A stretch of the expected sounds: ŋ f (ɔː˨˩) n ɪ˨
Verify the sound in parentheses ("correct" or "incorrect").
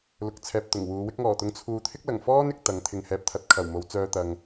incorrect